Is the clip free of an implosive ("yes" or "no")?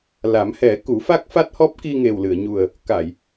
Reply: yes